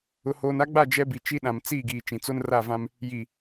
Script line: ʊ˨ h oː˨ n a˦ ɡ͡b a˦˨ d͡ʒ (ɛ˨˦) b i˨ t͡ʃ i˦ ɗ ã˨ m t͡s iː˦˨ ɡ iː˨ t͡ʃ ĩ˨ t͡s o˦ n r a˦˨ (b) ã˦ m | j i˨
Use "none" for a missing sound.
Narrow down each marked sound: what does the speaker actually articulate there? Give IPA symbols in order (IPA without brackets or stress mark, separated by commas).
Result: ɛ˦, v